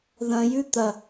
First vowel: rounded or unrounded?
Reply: unrounded